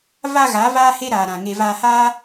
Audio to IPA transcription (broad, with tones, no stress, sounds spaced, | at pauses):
v a˧ ɣ a˨˦ v aː˦ h e˦ ɾ aː˨ ɾ ã˨ ŋ e˧ v aː˧ h aː˦